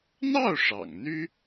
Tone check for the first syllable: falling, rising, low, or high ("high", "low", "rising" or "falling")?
falling